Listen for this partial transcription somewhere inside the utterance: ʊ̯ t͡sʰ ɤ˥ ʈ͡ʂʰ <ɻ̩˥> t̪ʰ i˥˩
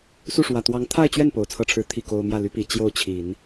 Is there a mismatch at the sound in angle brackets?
yes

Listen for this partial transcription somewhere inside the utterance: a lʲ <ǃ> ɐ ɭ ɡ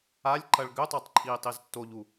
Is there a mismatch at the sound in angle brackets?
no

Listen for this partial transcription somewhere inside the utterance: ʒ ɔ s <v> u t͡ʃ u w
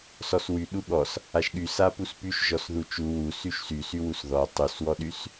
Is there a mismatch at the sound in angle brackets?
yes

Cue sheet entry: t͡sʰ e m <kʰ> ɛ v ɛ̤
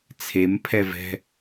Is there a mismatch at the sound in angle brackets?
yes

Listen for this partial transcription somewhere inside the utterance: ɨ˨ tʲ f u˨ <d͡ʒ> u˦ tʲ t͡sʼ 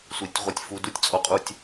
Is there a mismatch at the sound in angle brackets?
yes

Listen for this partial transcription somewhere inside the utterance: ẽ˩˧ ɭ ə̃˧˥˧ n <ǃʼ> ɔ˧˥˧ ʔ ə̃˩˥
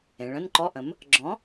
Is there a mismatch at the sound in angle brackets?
yes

